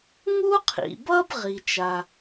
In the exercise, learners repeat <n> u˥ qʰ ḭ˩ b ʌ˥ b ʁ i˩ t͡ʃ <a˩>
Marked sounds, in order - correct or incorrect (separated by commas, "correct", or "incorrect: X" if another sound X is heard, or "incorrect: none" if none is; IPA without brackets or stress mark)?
incorrect: ŋ, correct